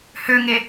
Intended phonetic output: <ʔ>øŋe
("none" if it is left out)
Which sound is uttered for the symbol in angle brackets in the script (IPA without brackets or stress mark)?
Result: h